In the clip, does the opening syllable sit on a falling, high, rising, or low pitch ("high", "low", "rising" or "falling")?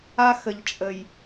high